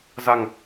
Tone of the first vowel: low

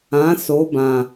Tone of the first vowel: rising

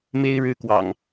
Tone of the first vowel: high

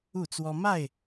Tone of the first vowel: falling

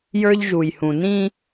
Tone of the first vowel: high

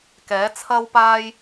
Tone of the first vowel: rising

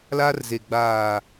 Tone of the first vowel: high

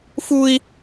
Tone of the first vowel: high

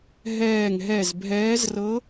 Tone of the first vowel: falling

